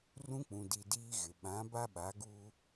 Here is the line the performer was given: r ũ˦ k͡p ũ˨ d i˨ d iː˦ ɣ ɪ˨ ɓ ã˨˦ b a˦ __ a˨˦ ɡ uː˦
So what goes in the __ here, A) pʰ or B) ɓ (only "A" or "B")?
B